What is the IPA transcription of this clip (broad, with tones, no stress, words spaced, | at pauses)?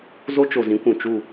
zo˦t͡ʃo˨zĩ˨˦ kʷũ˨t͡ʃu˦˨